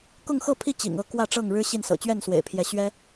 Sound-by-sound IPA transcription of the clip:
kʊ˥˨ŋxɤ˥˨pʰi˥˨ t͡ɕḭ˨˩ŋɤ˥˨ kwä˥˨ʈ͡ʂɤ˥˨ŋ ɻɻ̩˦ɕi˥˨nsɤ̰˨˩ t͡ɕɥɛ˥˨nswḛ˨˩ɪ̯pʰjɛ˨˦ ɕɥɛ˦

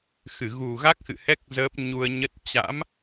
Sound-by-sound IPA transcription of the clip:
xɨ˧˩ɣu˨˩ɣa˦˥k̚xɨ̰˧˨ hɛ˦˥k̚ zəː˦˥p̚ ɲu˧ə̯ɲə˦˥t̚ t͡ɕa̰˧˥m

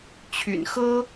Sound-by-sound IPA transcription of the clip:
t͡ɕʰy̰˨˩nxɤ˥

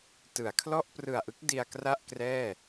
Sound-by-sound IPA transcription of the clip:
tɯ˩˦a̯kʰlɔ˥˩ʔ prɯ˨˩a̯ʔɯ˦˥k̚ di˧a̯kra˥˩ʔkrɛː˥˩

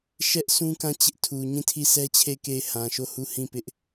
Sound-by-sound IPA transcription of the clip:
ʃɛ˦ʔsũ˦kã˦˨ t͡ɕɪ˦ʔtʰu˨ ɲĩ˦˨tʰi˦˨sɛ˦t͡ɕʰe˦˨ɪ̯ ke˦˨ɪ̯hã˨ʃo˦˨hu˦˨ hĩ˦˨ pɪ˦ʔ

